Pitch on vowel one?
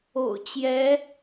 low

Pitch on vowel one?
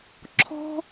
high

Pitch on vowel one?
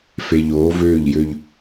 low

